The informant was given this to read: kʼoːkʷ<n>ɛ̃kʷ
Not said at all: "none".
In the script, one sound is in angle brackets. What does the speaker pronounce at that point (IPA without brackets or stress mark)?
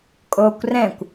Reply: r